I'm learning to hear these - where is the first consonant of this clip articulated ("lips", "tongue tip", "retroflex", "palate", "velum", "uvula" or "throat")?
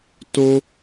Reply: tongue tip